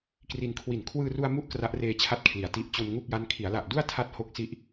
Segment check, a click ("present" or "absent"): absent